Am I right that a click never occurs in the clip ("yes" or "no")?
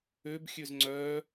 no